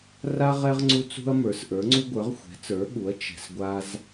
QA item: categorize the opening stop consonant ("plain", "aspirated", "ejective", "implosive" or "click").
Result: click